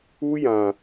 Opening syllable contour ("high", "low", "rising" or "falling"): high